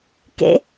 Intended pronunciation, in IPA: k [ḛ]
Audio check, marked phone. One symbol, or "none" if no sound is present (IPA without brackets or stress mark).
ḛ